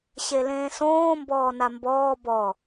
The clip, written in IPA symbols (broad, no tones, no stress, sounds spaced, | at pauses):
ɕ e l ẽː s õː m b ɔː n a m b ɔː b ɔ